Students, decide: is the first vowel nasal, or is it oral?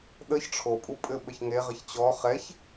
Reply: oral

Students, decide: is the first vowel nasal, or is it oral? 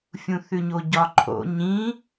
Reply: nasal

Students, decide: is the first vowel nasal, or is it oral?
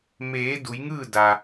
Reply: oral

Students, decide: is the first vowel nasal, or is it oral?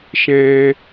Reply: nasal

